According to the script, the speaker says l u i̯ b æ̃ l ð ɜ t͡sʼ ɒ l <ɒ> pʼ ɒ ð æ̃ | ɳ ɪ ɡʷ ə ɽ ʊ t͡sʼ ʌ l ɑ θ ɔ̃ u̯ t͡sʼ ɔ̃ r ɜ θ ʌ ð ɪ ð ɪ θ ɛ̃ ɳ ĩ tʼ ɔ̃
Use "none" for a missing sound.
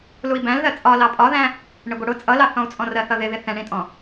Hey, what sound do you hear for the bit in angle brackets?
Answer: ɑ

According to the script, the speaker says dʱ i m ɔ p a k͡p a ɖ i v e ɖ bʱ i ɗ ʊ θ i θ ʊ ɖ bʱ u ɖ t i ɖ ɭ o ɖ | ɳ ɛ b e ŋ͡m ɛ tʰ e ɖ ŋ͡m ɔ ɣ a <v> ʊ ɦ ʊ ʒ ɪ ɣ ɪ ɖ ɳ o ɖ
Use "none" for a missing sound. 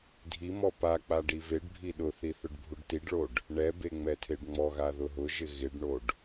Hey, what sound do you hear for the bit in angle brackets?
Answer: ð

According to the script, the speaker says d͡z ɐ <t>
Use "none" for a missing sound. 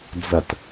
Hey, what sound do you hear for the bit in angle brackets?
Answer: t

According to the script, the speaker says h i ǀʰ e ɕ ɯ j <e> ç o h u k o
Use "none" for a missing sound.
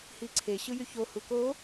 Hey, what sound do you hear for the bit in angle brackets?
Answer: y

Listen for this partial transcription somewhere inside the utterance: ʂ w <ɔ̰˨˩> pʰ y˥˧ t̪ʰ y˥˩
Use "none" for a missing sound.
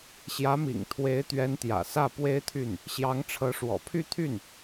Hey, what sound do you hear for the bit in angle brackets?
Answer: ɔ̰˨˩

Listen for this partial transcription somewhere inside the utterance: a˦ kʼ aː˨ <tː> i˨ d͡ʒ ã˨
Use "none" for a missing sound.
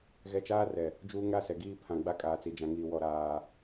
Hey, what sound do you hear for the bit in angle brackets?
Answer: t͡s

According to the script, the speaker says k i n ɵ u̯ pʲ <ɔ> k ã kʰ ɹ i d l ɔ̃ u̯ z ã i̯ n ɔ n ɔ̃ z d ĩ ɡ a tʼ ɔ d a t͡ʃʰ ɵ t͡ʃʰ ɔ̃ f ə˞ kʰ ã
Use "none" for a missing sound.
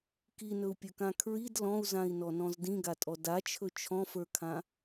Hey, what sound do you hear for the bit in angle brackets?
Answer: ɵ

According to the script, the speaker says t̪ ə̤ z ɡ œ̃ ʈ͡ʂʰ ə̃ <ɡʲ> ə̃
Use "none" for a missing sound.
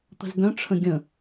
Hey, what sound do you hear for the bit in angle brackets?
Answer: ɡʲ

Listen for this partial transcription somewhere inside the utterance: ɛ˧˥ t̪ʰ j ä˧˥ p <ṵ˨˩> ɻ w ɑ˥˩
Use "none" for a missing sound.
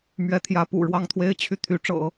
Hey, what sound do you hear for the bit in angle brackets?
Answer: ṵ˨˩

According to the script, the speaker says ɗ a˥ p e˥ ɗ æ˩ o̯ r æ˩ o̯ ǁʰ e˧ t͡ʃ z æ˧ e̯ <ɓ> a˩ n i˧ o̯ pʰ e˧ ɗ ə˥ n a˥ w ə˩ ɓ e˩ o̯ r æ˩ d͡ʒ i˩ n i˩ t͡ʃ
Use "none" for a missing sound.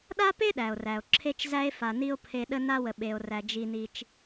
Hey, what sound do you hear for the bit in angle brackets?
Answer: f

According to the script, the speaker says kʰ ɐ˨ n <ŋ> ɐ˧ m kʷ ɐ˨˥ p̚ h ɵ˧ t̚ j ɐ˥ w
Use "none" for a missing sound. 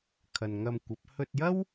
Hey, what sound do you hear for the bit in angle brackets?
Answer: ŋ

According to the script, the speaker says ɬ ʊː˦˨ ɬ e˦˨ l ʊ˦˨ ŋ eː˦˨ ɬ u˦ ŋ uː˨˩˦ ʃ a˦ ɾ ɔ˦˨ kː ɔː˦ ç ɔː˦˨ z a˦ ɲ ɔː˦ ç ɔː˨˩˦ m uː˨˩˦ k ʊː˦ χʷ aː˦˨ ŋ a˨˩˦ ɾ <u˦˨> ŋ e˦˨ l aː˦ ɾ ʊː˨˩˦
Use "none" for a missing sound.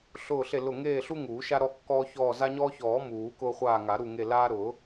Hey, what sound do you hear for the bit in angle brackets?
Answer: u˦˨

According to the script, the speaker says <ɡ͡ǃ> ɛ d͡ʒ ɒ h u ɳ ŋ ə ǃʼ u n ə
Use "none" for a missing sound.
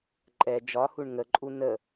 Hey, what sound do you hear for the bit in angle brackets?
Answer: ǃʼ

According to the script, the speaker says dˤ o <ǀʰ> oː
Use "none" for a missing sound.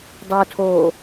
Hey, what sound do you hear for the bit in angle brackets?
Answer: tʰ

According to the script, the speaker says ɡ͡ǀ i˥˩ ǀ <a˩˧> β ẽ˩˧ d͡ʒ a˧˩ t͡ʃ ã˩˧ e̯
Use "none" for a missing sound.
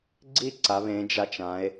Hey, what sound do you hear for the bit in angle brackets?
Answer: a˩˧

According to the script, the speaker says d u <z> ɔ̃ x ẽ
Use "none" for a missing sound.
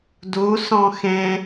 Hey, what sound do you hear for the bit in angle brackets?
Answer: s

